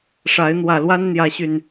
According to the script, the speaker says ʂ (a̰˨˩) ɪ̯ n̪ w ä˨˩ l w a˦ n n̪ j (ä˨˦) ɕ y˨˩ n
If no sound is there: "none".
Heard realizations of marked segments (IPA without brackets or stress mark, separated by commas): a˨˦, ä˨˦